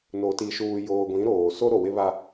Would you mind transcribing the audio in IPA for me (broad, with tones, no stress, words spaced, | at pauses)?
no˨ ti˨ʃuː˨joː˨ ɡʷĩ˨˦ɾoː˨ so˦ ɾo˨wɪ˦βa˦